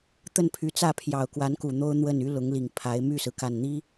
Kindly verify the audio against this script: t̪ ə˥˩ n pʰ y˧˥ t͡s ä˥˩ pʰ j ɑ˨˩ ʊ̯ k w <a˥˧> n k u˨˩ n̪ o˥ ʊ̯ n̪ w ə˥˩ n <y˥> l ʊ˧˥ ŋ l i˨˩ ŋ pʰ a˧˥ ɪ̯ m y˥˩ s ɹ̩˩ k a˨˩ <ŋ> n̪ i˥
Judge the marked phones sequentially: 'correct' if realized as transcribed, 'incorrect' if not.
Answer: incorrect, correct, incorrect

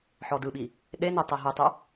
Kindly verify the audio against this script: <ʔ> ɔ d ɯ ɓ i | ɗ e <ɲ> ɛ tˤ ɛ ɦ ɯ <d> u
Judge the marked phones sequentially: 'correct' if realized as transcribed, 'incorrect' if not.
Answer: incorrect, incorrect, incorrect

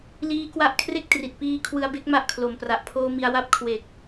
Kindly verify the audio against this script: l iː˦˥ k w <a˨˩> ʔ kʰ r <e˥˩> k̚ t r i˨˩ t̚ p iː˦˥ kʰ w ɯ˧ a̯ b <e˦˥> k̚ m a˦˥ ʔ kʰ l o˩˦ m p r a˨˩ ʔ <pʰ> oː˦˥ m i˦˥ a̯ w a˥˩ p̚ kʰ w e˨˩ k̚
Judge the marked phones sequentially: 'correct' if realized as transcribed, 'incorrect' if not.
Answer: incorrect, correct, correct, correct

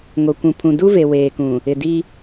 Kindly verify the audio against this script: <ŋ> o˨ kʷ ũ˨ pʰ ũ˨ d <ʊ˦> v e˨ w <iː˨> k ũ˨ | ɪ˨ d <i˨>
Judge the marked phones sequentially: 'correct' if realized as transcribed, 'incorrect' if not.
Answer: correct, incorrect, incorrect, incorrect

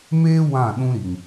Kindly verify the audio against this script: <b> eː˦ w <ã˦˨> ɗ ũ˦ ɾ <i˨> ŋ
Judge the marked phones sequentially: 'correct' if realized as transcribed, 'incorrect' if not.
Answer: incorrect, correct, correct

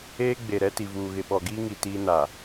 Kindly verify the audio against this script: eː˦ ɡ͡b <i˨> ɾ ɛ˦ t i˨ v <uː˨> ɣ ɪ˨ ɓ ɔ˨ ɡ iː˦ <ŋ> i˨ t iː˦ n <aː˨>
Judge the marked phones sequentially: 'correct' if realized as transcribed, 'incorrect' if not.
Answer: incorrect, correct, correct, incorrect

